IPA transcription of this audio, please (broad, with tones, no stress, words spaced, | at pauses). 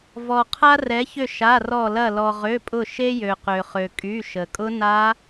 vɔ˩ qʰa˧rɛ˩˧çʏ˧˩ ʃa˩˧˩rɔ˧˩lɐ˧˩ lɔ˩ʁø˩˧˩pʼʊ˧˩ ʃe˧jø˩ qø˩χø˩kʼy˩˧˩ ʃə˩kʼʊ˦˥na˦˥